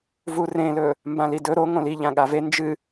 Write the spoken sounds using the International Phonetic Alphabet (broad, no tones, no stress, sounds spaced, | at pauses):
v u r ẽ l ɵ | m b ã l i d ɵ ɾ o ŋ õ l i ʎ ã ɠ a v e n d͡ʒ ɨ